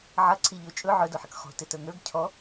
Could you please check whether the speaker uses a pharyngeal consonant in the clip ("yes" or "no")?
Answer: yes